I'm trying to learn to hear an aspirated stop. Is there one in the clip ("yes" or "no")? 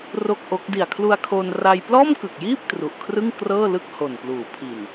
yes